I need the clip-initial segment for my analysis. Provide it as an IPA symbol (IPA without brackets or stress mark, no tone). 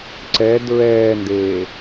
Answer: ǀ